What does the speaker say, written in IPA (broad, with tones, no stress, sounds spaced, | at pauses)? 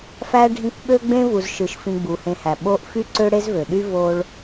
f æ˥ ɖʱ ĩ˦ kʷ ɓ ø˥ ɡ͡b ẽ˥ v u˨ z ʃ ɯ˨ ʃ f ĩ˨ ɡ͡b u˩ h ẽ˨ h æ˩ ɓ o˦ ʔ f y˥ ǀ ø˥ ɽ e˥ z v ø˩ ɗ y˥ v o˦ ɭ